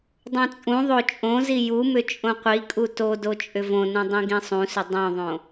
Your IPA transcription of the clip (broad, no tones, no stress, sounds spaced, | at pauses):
dˤ ũ t͡sʼ ũ ðˤ o t͡ʃʼ õ z i j u m ʏ t͡ʃʼ õ qʷ i kʼ u t o d o t͡ʃʼ ʏ v õ n ũ dˤ ĩ ɡ ĩ sˤ ũ s ʏ dˤ õ ðˤ õ